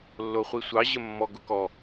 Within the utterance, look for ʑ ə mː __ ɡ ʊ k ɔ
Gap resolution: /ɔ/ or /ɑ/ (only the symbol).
ɔ